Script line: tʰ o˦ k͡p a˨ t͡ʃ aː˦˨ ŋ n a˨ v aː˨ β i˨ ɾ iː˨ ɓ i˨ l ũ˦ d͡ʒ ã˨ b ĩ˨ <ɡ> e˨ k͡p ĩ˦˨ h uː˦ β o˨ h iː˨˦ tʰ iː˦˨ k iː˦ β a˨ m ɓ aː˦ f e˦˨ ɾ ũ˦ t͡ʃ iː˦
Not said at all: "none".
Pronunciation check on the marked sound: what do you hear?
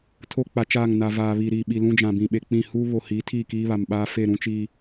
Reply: ɓ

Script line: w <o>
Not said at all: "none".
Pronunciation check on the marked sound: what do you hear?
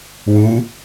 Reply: u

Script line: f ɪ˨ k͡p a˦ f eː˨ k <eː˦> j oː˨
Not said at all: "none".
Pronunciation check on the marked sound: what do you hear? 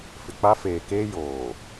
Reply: eː˦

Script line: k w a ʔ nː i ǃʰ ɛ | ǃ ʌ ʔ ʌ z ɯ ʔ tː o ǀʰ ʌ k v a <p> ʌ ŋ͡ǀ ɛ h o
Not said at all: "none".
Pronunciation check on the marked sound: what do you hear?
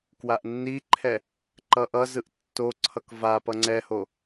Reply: p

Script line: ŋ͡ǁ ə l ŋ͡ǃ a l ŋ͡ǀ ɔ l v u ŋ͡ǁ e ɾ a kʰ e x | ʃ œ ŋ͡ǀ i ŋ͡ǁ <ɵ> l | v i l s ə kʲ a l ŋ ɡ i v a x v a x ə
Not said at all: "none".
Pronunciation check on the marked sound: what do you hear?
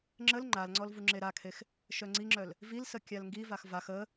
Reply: œ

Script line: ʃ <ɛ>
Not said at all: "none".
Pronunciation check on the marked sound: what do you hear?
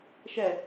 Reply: ɛ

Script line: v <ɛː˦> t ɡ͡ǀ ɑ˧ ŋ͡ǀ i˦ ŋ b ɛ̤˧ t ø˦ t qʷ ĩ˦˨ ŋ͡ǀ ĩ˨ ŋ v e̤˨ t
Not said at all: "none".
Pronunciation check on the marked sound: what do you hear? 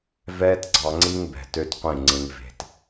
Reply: ɛː˦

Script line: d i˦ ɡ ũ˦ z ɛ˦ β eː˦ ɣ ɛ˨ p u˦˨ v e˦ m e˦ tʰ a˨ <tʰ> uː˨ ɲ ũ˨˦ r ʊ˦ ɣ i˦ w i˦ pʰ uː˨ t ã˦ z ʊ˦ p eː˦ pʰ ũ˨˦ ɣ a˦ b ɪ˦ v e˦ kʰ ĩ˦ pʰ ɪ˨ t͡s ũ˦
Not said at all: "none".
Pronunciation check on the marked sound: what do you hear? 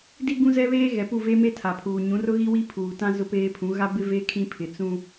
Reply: pʰ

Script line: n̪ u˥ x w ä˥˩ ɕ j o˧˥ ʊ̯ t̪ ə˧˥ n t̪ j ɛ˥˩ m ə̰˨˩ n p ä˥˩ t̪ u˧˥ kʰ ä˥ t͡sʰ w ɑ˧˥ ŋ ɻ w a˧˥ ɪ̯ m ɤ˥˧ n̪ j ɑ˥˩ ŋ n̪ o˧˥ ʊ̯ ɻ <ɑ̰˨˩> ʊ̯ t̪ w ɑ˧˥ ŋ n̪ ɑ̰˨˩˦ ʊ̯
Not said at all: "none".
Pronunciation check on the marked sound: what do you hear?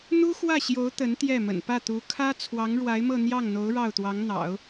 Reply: ɑ˥˩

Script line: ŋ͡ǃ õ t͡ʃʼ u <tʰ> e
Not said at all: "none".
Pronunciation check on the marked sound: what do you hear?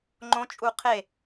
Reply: qʰ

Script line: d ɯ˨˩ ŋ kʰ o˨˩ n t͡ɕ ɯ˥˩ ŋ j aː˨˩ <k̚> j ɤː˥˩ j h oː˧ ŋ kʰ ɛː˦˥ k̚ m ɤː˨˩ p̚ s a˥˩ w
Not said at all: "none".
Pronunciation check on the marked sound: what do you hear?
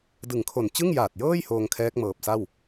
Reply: t̚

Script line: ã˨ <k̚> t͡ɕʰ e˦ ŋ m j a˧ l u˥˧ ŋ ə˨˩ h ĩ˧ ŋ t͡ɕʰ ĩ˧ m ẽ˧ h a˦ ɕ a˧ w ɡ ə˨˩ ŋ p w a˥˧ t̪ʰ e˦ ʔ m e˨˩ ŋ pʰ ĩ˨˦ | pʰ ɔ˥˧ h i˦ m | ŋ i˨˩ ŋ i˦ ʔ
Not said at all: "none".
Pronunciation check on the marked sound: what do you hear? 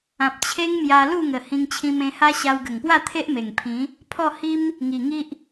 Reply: p̚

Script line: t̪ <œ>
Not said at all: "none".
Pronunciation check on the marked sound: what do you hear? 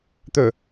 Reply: ɵ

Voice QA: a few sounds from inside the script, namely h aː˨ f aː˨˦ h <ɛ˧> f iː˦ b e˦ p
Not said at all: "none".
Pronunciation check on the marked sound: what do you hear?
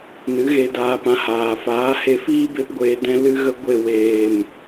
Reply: e˧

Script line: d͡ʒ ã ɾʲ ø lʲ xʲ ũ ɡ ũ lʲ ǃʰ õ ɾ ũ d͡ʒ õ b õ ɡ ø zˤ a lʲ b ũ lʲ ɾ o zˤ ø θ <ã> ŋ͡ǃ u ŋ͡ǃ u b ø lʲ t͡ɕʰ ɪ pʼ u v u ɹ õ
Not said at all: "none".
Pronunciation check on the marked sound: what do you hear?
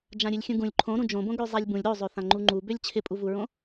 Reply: ã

